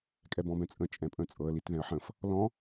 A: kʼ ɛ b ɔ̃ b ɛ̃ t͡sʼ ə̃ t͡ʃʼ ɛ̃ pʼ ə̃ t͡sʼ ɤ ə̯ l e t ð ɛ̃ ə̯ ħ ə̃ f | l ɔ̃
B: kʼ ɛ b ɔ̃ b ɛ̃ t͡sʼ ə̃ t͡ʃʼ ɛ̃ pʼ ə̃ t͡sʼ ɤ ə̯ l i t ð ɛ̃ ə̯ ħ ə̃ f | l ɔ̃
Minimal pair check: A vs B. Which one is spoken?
B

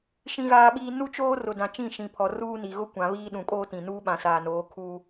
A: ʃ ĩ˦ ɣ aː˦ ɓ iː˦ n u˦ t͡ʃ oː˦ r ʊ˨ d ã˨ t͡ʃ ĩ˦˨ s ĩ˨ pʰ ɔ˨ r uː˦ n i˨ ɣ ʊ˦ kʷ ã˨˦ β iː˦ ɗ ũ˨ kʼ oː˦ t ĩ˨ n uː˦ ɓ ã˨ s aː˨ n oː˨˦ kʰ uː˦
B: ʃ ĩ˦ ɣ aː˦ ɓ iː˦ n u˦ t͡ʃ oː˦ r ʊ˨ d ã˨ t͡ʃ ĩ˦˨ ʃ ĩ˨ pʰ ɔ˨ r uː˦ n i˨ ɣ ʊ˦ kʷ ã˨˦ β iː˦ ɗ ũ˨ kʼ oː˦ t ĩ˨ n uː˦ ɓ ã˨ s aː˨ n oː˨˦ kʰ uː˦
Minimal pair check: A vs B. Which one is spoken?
B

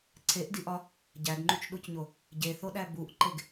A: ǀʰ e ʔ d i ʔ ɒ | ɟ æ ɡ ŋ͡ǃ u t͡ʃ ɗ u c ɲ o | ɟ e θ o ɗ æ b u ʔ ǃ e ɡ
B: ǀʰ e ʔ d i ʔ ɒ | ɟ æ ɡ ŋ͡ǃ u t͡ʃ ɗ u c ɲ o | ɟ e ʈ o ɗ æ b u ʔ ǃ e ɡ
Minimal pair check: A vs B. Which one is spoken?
A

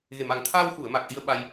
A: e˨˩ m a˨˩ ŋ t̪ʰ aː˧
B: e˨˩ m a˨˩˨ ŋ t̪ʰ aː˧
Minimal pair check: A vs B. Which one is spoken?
A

